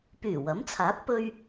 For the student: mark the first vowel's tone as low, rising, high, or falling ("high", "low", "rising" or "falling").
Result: low